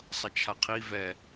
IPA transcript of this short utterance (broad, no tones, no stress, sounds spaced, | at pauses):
sˤ ʌ t͡ʃʰ a qʰ i v ɛ